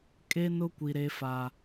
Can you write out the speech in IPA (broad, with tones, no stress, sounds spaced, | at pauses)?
kʼ e˦ n ʊ˦ kʷ i˨ ɾ e˦ f a˦